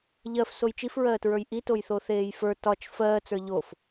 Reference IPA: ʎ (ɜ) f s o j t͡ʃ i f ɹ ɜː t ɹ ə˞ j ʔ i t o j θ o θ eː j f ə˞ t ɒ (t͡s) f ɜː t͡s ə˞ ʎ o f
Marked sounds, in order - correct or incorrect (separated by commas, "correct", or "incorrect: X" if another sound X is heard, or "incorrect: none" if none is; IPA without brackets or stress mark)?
correct, incorrect: t͡ʃ